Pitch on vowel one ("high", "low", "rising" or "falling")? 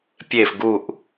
falling